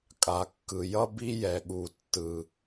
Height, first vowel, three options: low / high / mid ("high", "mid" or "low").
low